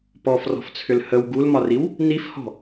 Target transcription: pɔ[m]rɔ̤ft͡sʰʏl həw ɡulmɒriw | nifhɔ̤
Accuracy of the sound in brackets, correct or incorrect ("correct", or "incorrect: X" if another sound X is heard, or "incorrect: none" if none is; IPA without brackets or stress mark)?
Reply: incorrect: f